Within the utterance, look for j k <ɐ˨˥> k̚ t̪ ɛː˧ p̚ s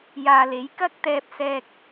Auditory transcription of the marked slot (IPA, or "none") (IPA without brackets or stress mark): ɐ˥